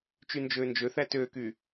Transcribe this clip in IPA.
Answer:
t͡ʃ y n d͡ʒ øː n d͡ʒ ø θ æ t øː k yː

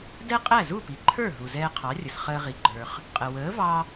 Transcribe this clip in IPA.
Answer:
d ɛ˥ qʼ æ˥˩ z u˥˩ p i˩ ǃʰ ə˞˥˩ ɦ u˩ z ɛː˧ qʰ ɑ˩˥ rʲ ə˩ s χ əː˧ ʁ i˩ ɡ͡ǃ ə˞˩ χ | qʼ ə˩ w əː˩˥ v ɑ˧

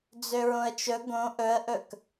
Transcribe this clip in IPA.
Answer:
d͡z ø ɹ õ ə̯ t͡ʃ ɵ ɡ õ ʔ ɵ ə̯ ʔ ɵ k

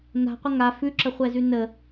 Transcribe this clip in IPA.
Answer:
n a̤ qʷ ə ŋ a f ʉ ǁ ə χʷ ɛ z ʉ n ə

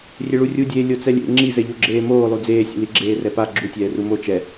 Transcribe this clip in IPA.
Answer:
rʲ e ɭ u rʲ u dʲ eː lʲ o t͡s ɛ lʲ ḛ ŋ͡ǁ i z ɛ ʎ o ɡ͡ǁ eː m oː lˠ u d͡z eː sʲ ḛ l i ɡ͡ǁ eː r ɛ p a ɡ͡ǁ u tʲ ɛː r u m o t͡ʃ ɛ

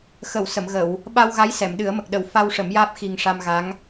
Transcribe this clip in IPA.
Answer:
x ə˨˩˨ w s ə˨˩˨ m ɣ ə˨˩˨ w | ɓ a˧ w ɣ a˧˥ j s ɛ˨˩˨ m ɗ ɨ˨˩˦ ə̯ m ə˨˩ k̚ ɗ ə˨˩˦ w f a˧ w ʂ ə˨˩˦ m j aː˦˥ p̚ x i˨˩ ŋ ʂ a˧ m ɣ a˧˥ ŋ

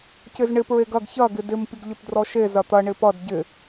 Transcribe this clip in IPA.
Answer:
c ɪ z ɳ ɪ p ɹ e ɡ ɐ ɡ ç ɐ ɡ ɪ d ɪ m pʲ ə ɡ ʎ ɪ p d r ɔ ʃ e z ɐ t̪ ɐ ɳ ɪ p ʌ d ɟ ɪ

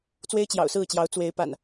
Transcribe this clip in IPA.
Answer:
t͡s w e˦ ɪ̯ t͡ɕ j ɑ̰˨˩ ʊ̯ s ɹ̩˥˨ t͡ɕ j ɑ˨˦ ʊ̯ t͡s w e˨˦ ɪ̯ p a̰˨˩ n

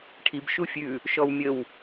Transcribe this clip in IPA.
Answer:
ʈʰ i b ʃ u fʲ ʉ | ʃ ɔ w mʲ ə w

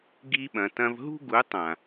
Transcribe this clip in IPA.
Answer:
ɡ i˧ ɓ ɐ̃˨ t ɐ̃˧ v ɦ ṳ˦ ɡ u˨˦ tˤ ã˨

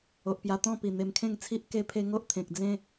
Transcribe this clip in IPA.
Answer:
o˨ ʔ p j a˧ t̪ ɔ̃˥˧ p i˨˩ n̪ e˧ m kʰ ẽ˥˧ ŋ t͡sʰ i˦ ʔ k e˦ pʰ e˦ ŋ o˦ ʔ t̪ʰ ẽ˨ k̚ d͡z ẽ˦

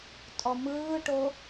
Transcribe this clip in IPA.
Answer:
tʼ ɔ m ɯː ʈ o

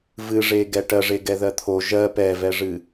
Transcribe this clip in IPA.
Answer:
v ɨ ʐ e ɡ ɛ ʈ ɜ ʐ e ɡ ɛ ð ɜ t̪ʰ o ʒ ɜ p ɛ v ɛ ʐ ɨ

